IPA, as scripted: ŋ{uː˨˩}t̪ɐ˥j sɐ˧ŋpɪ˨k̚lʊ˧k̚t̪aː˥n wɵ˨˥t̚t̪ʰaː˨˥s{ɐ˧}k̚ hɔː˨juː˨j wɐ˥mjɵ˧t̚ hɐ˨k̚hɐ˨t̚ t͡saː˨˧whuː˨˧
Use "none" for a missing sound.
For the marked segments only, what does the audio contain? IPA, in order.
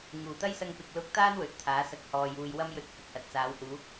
uː˨˩, ɐ˧

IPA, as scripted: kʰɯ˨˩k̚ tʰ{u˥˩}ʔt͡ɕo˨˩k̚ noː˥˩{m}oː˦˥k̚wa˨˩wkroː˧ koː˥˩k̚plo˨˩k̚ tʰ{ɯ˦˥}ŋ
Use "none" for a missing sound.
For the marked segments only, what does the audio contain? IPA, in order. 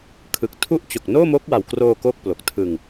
u˦˥, m, ɯ˧

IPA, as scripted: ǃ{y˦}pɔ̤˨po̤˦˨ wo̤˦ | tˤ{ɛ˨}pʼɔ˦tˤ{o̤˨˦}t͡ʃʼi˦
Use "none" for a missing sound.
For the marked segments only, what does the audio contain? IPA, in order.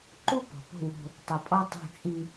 u˦, ə˨, o̤˦˨

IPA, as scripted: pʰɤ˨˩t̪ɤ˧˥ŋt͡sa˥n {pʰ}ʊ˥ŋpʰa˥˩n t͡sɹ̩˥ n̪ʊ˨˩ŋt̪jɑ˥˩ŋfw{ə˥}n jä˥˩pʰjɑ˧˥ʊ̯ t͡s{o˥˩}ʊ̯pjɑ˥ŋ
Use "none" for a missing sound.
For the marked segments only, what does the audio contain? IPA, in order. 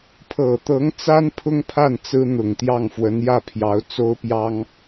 pʰ, ə˧˥, o˥

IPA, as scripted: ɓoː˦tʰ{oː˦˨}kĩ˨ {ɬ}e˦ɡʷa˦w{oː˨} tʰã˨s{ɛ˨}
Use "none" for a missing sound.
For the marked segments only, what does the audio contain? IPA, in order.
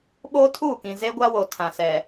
uː˦˨, z, o˨, ɛ˨

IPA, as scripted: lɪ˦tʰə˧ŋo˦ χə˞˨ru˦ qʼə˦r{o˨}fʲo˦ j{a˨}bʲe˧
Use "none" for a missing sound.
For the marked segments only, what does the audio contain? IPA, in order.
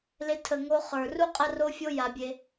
o˦, a˨

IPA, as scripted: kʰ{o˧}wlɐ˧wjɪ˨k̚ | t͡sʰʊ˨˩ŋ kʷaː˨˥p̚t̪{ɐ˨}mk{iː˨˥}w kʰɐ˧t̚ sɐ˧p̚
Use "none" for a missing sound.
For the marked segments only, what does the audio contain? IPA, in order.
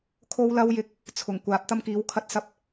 o˧, ɐ˥, iː˨˥

